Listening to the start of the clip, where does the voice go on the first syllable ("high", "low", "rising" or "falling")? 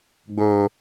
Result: low